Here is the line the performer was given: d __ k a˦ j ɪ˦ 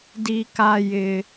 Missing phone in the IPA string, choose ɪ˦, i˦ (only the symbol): i˦